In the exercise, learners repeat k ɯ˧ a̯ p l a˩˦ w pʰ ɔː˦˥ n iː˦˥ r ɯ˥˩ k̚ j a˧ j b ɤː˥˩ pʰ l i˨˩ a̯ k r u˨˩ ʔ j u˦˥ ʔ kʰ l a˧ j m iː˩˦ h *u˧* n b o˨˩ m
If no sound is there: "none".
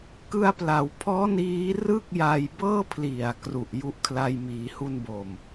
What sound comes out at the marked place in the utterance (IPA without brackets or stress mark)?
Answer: u˧